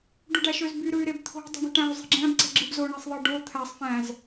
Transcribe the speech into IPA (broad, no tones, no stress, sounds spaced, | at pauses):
ɖ u ɖ æ ʃ ø z b y ɾ ɯ y̯ ɾ e b t̪ʰ o̤ dˤ i̤ ɳ i̤ ʈ æ̃ u̯ zˤ i̤ ɡ͡ǁ æ̃ b ǀ e̤ ɡ͡ǁ ɯ b z o ɳ i sˤ ðˤ ɯ ɖ o t̪ʰ æ sˤ f æ̃ z